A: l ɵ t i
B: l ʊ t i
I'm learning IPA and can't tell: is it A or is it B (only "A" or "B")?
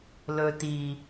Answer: A